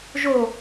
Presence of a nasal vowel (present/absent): absent